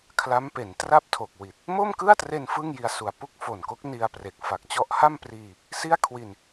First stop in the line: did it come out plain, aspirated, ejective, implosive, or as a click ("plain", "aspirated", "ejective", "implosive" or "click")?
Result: aspirated